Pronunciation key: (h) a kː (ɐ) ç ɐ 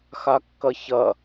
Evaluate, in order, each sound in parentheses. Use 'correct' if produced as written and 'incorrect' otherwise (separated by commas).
incorrect, correct